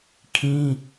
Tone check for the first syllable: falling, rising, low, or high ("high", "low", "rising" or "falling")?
high